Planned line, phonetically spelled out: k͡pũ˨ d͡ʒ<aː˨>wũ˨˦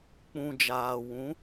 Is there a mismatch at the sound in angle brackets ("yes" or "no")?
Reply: no